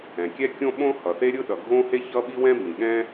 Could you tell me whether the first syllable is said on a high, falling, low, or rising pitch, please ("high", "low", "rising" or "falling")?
low